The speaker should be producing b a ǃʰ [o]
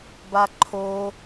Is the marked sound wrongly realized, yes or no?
no